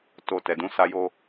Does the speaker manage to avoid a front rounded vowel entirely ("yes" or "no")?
yes